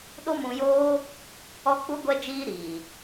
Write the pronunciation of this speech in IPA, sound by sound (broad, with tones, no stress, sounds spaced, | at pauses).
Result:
ɗ o˦ m ũ˧ j oː˦ | ɔ˦ k͡p u˦ ɡʷ ɛ˦ d͡ʒ iː˦ ɾ iː˨